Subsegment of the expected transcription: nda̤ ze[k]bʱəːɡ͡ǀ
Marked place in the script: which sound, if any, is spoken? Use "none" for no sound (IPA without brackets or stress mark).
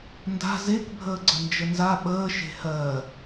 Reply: k